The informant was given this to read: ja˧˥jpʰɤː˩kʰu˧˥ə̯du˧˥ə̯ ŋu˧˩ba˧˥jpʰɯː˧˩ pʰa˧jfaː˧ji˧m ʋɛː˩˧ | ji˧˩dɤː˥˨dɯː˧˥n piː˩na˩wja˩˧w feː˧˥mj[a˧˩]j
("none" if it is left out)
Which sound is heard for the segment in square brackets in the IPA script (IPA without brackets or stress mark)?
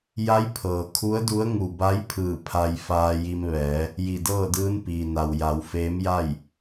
a˥˨